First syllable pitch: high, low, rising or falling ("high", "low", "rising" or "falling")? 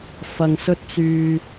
low